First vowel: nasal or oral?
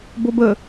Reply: oral